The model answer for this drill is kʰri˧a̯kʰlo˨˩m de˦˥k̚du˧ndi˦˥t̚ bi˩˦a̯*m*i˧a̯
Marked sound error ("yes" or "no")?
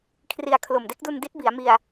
no